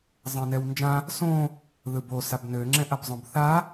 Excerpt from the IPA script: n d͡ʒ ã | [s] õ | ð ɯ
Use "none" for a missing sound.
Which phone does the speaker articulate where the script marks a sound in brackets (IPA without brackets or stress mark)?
s